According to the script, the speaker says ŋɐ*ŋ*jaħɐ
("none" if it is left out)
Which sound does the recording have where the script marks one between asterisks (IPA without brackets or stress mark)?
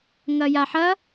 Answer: none